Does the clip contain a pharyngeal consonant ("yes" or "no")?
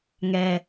no